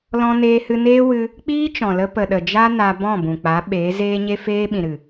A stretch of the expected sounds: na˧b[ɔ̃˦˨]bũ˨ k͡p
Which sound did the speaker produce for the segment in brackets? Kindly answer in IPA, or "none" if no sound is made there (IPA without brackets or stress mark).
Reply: ɔ̃˦˨